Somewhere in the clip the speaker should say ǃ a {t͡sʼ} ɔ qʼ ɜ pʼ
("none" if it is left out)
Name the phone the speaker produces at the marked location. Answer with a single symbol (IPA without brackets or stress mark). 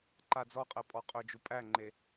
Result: d͡z